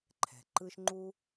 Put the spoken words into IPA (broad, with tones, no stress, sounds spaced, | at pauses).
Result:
ǃʰ ɛ̤˩ ǃ ɯ˦ ʃ ŋ͡ǃ u˥